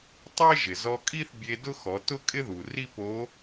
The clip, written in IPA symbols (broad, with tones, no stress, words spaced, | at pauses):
tˤe˥ʒɪ˩ zɔ˧kʼi˥θbʲe˧ dʊ˥xɔ˩˧tʊ˥kʼɪ˥ ðu˩ri˥po˧˥